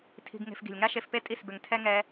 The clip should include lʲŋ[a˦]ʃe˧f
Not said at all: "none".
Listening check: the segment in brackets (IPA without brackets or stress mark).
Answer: a˦